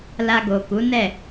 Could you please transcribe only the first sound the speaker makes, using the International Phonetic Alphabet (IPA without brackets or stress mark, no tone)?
l